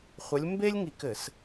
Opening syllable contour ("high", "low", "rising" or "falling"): rising